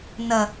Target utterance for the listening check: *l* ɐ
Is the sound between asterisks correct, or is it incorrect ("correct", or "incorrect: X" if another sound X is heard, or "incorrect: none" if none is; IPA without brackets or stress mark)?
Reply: incorrect: n̪